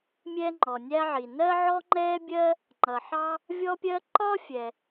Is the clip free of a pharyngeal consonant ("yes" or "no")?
no